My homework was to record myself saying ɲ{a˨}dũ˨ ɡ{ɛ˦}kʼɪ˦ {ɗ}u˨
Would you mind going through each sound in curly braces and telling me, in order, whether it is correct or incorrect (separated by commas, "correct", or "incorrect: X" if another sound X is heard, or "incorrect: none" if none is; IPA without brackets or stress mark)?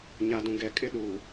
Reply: correct, incorrect: ɛ˨, correct